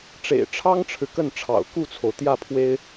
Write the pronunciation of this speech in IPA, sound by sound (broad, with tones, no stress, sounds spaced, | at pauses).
ʈ͡ʂ ḛ˨˩ ɪ̯ ʈ͡ʂʰ ɑ˥ ŋ ʈ͡ʂʰ ɻ̩˨ k ə˥˩ n ʈ͡ʂʰ ɑ̰˨˩ ʊ̯ k u˥˩ t͡sʰ o˩ ʊ̯ t̪ j ä˥˩ pʰ w e˥ ɪ̯